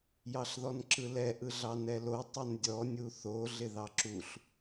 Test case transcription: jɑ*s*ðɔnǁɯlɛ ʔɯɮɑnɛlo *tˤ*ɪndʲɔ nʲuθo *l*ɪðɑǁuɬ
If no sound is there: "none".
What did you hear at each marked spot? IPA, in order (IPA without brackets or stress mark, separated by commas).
ɬ, tˤ, ɮ